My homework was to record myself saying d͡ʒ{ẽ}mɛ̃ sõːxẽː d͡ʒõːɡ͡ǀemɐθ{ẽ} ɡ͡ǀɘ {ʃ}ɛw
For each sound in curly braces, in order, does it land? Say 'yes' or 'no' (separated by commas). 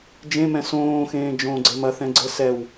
yes, no, no